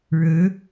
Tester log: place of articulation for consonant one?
retroflex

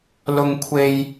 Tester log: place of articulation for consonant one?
alveolar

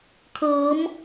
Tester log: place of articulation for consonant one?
velar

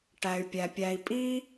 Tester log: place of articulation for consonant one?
retroflex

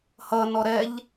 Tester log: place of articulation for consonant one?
glottal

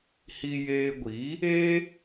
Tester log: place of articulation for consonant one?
glottal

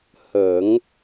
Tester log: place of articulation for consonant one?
glottal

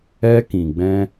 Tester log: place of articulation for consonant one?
velar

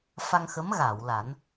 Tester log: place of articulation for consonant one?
labial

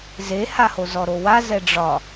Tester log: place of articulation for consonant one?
alveolar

